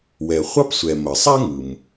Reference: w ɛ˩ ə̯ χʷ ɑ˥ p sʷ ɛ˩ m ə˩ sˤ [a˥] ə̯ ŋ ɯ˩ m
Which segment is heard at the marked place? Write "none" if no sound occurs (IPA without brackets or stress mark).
a˥